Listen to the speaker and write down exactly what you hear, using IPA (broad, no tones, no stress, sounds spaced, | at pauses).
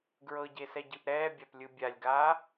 ɡ ɹ ɤ ɟ e s ɛ ɟ ɯ ʔ ɾ ɛː bʲ a p lʲ ɯ bʲ a lʲ ɡ aː